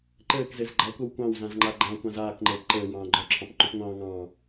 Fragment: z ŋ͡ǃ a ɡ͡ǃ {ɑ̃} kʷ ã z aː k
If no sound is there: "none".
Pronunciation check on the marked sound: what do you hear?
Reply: ɑ̃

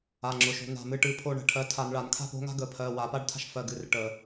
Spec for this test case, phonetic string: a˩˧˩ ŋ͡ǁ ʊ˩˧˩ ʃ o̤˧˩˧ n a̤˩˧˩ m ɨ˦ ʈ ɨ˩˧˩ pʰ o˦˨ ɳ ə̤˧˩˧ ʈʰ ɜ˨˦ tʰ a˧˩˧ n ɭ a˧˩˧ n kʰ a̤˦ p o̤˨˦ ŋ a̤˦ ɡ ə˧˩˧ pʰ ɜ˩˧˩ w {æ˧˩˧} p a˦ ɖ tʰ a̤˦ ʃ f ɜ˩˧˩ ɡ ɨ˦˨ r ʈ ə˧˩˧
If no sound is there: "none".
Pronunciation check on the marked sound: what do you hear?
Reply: a˧˩˧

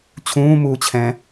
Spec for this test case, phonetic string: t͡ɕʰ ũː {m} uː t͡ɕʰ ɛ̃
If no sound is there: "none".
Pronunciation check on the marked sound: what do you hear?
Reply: m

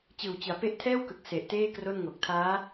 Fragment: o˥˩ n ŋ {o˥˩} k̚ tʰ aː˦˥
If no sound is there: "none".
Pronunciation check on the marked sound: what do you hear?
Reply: o˨˩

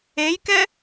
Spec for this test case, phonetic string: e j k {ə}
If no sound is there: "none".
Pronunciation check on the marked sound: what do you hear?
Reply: ɛ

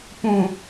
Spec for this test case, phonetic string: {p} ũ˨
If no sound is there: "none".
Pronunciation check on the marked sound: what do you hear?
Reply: p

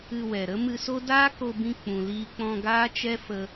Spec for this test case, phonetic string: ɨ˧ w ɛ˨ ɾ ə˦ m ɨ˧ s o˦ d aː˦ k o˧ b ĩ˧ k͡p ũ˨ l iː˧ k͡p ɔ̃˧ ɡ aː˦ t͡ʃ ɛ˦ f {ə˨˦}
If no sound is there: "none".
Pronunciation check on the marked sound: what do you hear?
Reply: ə˧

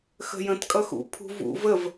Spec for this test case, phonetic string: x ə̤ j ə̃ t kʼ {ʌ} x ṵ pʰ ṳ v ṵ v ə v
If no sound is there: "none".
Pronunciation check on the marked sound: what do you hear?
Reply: ʌ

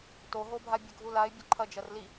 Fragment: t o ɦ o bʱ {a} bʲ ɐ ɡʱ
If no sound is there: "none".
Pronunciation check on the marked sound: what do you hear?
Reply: a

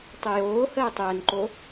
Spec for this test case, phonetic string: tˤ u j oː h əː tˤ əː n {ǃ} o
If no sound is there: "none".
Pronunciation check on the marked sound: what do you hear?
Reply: ǃ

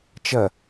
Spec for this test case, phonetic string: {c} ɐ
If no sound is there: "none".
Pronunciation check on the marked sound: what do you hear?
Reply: t͡ʃ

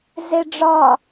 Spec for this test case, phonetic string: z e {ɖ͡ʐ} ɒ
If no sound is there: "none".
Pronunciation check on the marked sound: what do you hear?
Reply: ɖ͡ʐ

